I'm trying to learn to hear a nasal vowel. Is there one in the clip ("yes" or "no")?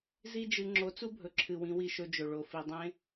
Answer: yes